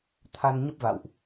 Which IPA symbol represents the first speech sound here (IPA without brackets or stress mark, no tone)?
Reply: t̪ʰ